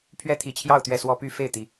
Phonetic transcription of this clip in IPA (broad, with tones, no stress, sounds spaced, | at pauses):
pʰ ɥ ɛ˦ t̪ʰ i˨˩ t͡ɕʰ j ɑ˥˨ ʊ̯ t̪ ɥ ɛ˥˨ s w ɔ˦ p y˦ f e˥˨ ɪ̯ t̪ i˨˦